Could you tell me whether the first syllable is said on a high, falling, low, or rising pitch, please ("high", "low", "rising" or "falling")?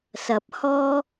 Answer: rising